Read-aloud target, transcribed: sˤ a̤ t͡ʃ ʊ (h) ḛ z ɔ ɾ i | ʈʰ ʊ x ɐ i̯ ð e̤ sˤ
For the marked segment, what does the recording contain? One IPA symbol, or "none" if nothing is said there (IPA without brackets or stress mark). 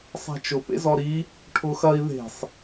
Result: p